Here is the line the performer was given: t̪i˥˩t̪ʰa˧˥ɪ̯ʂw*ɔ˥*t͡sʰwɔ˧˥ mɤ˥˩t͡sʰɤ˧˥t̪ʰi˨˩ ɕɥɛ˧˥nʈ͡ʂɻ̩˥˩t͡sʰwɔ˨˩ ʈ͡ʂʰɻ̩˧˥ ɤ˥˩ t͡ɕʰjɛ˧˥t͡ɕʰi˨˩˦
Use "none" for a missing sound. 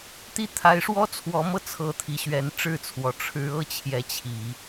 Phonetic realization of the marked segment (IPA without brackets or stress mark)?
ɔ˥